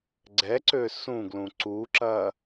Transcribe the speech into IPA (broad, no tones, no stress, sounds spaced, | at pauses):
ɡ͡ǀ ɛ ǀ ø s ũ ɡ l ũ ǀ u ǁ ɐ